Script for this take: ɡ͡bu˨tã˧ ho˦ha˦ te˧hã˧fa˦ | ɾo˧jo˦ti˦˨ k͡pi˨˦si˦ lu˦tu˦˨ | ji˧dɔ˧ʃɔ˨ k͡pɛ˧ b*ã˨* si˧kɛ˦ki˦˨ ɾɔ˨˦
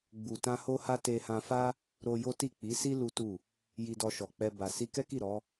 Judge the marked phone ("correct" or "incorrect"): incorrect